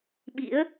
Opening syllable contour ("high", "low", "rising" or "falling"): rising